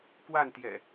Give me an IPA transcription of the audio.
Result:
k w a˥˨ n t̪ j ɛ̰˨˩

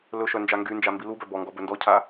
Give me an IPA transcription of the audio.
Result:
l ɵ ʃ œ n d͡ʒ a ŋ ɡ y n d͡ʒ a m b i l u b œ b ɔ ŋ ɡ ɔ b ɵ n d ɔ cʰ a

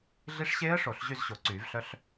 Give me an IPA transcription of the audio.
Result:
ɮ i˦˥ ʂ ɕ eː˦˥ ə̯ ʂ o˨˩˦ ɬ ʑ y˥˧ z ɕ o˨˩˦ ǀ yː˨˩˦ v ɬ œ˦˥ ɬ

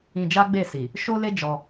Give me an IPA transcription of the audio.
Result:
ĩ˧ d͡ʒ a˦ ɡ͡b e˦˨ s i˨ | ʃ o˦ l e˦ d͡ʒ ɔ˧

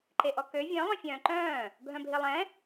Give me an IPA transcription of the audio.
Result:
ǃ e ʔ ɔ k ø vʲ œ̃ lˠ œ̃ fʲ œ̃ː ǃ œ̃ː | bʱ œ̃ bʱ i lˠ ɛ̃

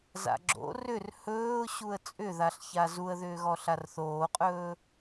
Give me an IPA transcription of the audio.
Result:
z a̰ ɡ͡ǁ o̰ r ʏ r h ɵː ʊ̯ ɕ u ə̯ t͡sʼ ʏ ð a ɬ ç a z u ə̯ ð ʏː ɣ ɔ ɬ a r θ oː qʼ ɵː

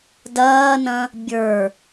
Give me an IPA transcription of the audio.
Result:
d ɐː n ɐ̃ | bʲ ə˞

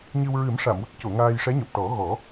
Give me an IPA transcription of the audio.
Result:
ɲ ɨ˧ w ɹ ɨ˨˩˦ m ʂ a˨˩˨ m w ə˦˥ k̚ c o˨˩˨ ŋ aː˧ j ʂ ɛ˧˥ ɲ o˨˩ p̚ ʈ ɔ˨˩˦ ɣ ɔ˨˩˦

